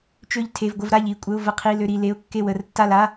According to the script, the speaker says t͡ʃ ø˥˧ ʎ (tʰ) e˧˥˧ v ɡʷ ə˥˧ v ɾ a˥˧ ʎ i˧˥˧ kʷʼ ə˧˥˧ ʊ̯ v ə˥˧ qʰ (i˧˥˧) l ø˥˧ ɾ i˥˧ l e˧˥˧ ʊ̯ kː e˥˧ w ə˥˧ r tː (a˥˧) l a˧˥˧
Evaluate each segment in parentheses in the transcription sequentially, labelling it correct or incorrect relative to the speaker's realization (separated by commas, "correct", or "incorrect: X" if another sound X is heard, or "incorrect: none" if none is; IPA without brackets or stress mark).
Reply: correct, correct, correct